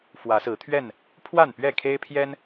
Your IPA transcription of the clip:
f w ä˨˦ s ɹ̩˨˦ t̪ʰ ɥ ɛ˥˨ n | pʰ w a˥˨ n p ɥ ɛ˥˨ kʰ e˦ ɪ̯ pʰ j ɛ˦ n

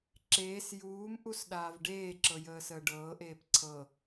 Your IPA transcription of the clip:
ǁ eː s j uː m ʔ u s ɗ aː v ɖ eː ǁ ɤ j əː s əː ɖ ɤː ʔ eː p ǀʰ ɤ

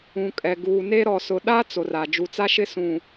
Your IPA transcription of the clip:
ũ˨ kʼ ɛ˨ ɡ uː˨ n e˦ ɾ ɔ˨ s ʊ˨ ɗ a˦ t͡s o˨ r a˨ d͡ʒ u˨ t͡s a˦ ʃ ɪ˦ s ũ˨

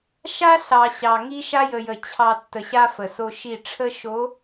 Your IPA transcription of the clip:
ʃ a˦ ɬ ɑ˨ ɕ ɑ˨ ŋ i˦ ʃ a˦ j ə˨ j ə˨ t͡ɕʰ ɑ˨ tː ə˨ ɕ a˦ f ə˨ s o˦ ʃ i˦˨ ʈ͡ʂʰ ə˦ ʃ o˨˦

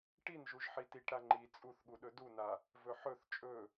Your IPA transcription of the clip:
ʈ i n ʒ u ʒ ħ i t i ʈ ɾ a ŋ͡ǃ i t͡sʼ u θ ɠ u ɗ ɵ d u n a | v ɵ ħ ɵ θ t͡ʃʼ ɵ

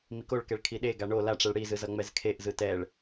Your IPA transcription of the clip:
m i k o ɭ k ɛ ɭ kʰ i ɗ e ɡ a ɳ o l a ʈ͡ʂ ɛ ɭ ɽ i z ɯ z ʌ ŋ͡m ɛ z kʰ e ʔ z ɯ t ɛ ɭ

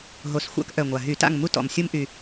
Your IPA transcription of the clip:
ɦ o˨˩ s xʷ a̰˦ k ʔ œ˨˩ ŋʷ a˨˩ ɦ y˧˩˧ t a̰˥˨ ŋ m u˦ t ɔ̰˨˩ m sʲ u˦ m ʔ y˨˩

